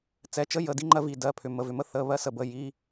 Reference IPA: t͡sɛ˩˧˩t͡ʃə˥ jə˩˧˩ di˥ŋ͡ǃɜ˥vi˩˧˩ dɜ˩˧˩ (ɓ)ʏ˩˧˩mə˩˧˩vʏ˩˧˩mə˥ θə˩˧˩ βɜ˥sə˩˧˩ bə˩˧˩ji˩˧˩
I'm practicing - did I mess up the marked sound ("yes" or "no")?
yes